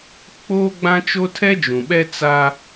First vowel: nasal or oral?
oral